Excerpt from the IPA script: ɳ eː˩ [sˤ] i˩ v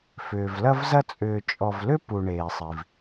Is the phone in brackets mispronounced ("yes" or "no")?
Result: no